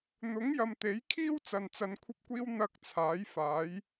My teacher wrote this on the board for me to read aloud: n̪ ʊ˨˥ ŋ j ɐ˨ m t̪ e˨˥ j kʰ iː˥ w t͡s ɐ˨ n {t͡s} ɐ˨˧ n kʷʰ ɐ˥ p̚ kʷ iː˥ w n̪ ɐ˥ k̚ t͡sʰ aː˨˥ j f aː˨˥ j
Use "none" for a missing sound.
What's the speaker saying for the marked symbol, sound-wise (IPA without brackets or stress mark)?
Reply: t͡s